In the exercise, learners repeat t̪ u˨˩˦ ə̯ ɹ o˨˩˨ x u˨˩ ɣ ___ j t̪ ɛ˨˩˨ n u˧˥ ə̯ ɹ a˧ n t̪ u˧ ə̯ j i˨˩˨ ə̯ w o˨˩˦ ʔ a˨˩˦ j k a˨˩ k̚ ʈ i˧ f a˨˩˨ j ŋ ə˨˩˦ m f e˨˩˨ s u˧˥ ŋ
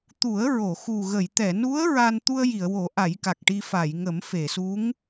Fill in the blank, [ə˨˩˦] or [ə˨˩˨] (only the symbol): ə˨˩˨